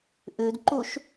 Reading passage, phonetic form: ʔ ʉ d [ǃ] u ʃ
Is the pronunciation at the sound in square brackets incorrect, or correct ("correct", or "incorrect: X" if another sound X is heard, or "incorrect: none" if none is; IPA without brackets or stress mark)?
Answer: correct